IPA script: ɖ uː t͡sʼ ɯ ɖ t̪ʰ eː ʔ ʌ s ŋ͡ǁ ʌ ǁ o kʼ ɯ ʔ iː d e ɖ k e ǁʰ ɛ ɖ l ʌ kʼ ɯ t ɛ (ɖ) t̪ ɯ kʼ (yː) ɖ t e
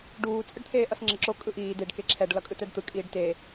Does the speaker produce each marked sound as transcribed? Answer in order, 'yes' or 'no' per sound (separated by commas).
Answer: yes, no